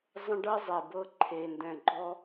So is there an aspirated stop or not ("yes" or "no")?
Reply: yes